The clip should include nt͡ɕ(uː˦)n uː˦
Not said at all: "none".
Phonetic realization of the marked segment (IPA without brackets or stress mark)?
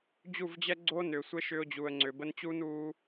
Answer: uː˦